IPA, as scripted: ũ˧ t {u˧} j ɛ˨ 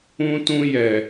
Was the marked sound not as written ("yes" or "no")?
yes